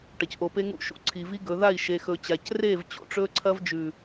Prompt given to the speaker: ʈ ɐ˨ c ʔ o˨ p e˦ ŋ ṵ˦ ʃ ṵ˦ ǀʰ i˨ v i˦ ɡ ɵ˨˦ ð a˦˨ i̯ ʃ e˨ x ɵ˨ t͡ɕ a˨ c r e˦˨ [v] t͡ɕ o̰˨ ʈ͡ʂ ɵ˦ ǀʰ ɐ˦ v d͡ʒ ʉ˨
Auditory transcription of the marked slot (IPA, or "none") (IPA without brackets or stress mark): v